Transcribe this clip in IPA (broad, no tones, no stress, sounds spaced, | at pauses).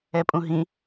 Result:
ɛ pʼ ũ ɦ ĩ